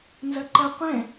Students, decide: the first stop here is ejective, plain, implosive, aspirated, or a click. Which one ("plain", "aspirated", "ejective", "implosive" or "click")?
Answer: click